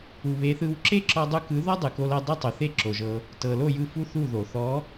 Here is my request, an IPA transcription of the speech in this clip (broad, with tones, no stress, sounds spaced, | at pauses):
u˨ β e˨˦ θ ɯ˧ w ǁ e˦ ǁ ɔ˧ dˤ u˧ k ɯ˨˦ ð ɔ˦ dˤ ɯ˨ k o˧ l ɤ˧ dˤ e˦ tˤ o˨ θ e˦ ǁ o˨ ʒ ɤ˧ | t ɤ˨ l o˦˨ j ɯ˦˨ f u˦ θ u˦˨ ð o˨ θ ɔ˨˦